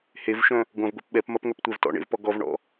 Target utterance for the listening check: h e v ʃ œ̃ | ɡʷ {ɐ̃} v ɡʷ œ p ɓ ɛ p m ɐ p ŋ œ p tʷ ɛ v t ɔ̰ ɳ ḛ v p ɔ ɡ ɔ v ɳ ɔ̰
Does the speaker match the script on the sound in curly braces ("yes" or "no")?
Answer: yes